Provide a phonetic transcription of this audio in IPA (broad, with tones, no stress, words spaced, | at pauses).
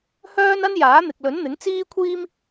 hœː˥nɐ˥n jaː˨˥n̪ɪ˨k̚lɵ˨˥nn̪ɪ˨˥ŋ t͡siː˥kʷʰiː˥m